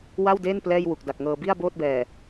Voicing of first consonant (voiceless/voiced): voiced